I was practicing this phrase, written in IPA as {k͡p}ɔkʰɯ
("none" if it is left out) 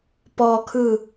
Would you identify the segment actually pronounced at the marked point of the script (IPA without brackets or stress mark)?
p